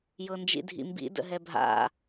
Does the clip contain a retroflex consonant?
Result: no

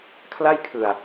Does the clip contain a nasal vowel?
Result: no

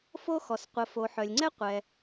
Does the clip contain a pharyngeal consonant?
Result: yes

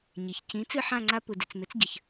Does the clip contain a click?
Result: yes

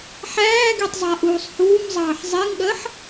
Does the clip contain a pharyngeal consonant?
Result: yes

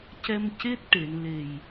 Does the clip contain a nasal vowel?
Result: no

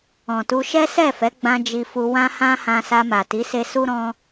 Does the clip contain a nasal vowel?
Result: yes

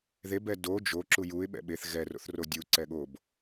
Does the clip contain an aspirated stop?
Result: no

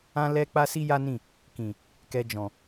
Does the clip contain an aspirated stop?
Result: no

